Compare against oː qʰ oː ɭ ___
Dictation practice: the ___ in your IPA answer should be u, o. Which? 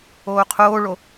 o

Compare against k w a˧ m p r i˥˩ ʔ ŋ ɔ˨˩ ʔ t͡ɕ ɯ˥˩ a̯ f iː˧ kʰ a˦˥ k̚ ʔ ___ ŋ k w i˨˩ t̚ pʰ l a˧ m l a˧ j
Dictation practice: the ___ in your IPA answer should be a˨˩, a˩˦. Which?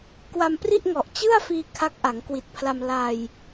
a˩˦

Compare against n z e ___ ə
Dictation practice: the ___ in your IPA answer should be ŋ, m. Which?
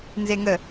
ŋ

